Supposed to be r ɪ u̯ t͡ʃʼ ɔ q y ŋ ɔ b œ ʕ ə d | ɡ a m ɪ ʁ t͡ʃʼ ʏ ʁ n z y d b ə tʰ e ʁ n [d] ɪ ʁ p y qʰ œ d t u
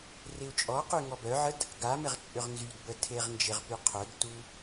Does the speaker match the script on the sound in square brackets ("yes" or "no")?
no